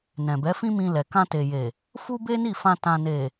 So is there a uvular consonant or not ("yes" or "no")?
no